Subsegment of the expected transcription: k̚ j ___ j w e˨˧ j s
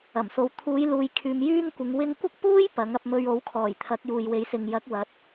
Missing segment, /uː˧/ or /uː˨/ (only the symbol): uː˨